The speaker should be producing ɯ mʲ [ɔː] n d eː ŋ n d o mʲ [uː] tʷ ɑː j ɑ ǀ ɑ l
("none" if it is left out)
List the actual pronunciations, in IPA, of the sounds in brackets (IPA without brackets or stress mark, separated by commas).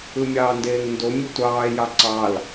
ɑː, u